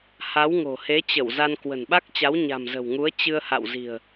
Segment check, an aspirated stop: absent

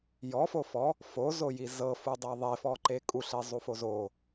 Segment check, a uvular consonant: absent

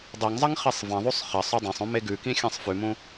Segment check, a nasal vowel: present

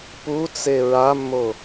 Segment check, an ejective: absent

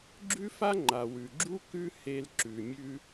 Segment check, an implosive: absent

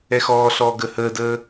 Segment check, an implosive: absent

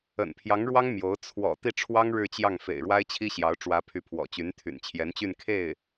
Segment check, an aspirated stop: present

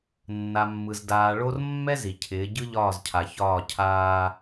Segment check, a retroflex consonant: present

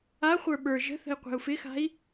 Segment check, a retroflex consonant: absent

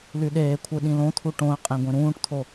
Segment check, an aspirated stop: present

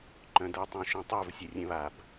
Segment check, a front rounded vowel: present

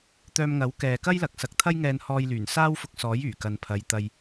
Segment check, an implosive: absent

